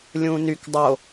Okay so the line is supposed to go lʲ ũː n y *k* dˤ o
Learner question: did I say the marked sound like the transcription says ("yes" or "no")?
yes